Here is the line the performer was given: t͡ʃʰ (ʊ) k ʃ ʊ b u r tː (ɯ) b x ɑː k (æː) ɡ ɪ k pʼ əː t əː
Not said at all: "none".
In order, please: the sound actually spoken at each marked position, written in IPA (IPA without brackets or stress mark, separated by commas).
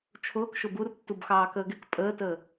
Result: ʊː, u, əː